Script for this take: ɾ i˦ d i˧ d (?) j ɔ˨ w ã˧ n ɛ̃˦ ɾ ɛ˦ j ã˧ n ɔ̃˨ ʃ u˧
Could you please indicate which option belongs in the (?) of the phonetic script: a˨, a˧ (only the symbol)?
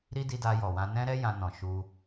a˧